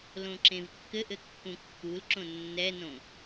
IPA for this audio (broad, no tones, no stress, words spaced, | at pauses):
lõǁẽvkːɘʔɘ kːũkːulǁõ nːɛnõ